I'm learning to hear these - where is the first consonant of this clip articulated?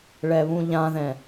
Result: retroflex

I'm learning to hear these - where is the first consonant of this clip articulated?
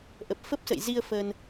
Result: throat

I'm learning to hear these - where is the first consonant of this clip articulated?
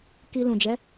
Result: velum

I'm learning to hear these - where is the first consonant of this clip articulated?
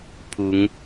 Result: lips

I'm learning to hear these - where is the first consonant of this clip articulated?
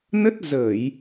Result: tongue tip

